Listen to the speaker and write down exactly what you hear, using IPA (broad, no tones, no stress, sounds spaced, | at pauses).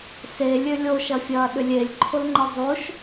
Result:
s e lʲ ø lʲ o ʃ ɐ fʲ ɐː ɗ ʏ lʲ e lʲ ǃʰ ʊ l ŋ͡ǃ ɪ zˤ o ʃ